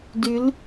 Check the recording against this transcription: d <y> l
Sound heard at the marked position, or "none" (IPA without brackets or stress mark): y